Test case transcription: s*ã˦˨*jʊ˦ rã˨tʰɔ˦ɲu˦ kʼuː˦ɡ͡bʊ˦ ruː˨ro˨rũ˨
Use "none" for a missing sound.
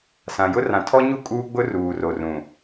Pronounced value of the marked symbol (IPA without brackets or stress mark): ã˨